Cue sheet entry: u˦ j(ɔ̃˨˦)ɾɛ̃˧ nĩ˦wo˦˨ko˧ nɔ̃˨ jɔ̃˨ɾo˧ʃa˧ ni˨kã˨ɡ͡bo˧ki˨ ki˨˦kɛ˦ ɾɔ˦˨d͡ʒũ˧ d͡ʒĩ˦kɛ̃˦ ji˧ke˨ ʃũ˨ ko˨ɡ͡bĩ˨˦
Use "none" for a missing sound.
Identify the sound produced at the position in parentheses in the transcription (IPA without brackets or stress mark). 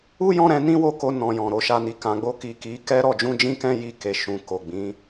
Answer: ɔ̃˦